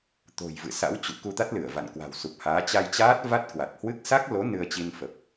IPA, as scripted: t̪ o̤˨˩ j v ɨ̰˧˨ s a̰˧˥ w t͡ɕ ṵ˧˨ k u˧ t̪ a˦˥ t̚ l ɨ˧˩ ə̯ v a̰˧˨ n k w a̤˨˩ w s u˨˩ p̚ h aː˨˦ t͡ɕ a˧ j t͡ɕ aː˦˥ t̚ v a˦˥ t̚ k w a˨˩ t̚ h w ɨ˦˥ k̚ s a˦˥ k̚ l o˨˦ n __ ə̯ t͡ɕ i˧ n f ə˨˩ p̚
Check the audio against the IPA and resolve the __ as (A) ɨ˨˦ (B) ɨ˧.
B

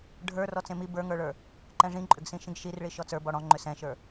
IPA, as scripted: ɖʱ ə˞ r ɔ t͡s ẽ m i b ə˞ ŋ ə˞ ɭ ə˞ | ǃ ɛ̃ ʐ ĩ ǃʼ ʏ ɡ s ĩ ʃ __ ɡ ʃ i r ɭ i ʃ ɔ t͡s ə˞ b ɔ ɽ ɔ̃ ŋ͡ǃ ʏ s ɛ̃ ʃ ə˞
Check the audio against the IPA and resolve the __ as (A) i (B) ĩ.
B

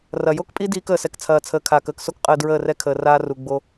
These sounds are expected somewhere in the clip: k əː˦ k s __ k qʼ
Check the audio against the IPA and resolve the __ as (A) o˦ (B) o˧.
A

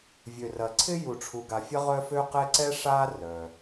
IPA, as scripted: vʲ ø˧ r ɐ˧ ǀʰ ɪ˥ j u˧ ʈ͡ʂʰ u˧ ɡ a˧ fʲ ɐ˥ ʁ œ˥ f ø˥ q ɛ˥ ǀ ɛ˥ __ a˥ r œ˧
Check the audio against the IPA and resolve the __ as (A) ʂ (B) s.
A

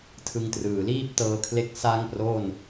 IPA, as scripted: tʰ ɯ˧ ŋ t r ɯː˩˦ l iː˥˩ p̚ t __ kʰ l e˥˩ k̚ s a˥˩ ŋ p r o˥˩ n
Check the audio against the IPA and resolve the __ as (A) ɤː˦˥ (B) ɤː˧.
B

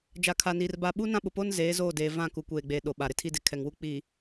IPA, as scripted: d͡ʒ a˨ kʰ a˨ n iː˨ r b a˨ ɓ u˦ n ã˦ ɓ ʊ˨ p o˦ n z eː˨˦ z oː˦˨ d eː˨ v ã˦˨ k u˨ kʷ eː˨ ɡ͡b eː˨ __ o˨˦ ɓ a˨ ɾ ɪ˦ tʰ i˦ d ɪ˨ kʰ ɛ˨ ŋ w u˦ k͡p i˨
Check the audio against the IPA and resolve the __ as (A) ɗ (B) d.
A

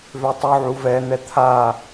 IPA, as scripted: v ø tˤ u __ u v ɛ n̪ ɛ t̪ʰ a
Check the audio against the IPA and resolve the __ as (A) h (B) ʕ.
B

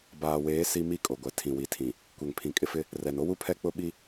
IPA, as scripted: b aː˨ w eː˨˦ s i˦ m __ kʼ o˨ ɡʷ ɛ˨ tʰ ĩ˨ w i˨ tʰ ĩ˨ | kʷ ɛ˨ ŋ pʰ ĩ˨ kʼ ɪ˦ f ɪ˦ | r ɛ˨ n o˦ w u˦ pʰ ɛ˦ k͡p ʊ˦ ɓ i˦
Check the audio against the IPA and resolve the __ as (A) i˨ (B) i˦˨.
B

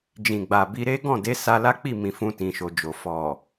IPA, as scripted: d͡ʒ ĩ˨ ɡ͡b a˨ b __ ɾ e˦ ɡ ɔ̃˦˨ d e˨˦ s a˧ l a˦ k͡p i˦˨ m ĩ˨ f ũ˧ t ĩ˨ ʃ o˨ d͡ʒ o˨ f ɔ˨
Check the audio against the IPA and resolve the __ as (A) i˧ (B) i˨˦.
A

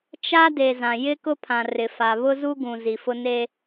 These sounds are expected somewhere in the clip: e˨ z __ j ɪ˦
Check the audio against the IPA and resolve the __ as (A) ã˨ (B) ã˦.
A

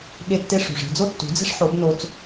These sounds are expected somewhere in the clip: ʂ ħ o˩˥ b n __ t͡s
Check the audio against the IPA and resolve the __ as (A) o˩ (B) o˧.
B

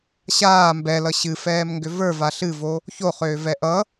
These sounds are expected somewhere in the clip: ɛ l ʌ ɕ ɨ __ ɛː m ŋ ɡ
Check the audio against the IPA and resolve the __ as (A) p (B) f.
B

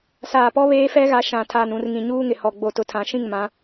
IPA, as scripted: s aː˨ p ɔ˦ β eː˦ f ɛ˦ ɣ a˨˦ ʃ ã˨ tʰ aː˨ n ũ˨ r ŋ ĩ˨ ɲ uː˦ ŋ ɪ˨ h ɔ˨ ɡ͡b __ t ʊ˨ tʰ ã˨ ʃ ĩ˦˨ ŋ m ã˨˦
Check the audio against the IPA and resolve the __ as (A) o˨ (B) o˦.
A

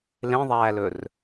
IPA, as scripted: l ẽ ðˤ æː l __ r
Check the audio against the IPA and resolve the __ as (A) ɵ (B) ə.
A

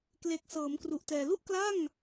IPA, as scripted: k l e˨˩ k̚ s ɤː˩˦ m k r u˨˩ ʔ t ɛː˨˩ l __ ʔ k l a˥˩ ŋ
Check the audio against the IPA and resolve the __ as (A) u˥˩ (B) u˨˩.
A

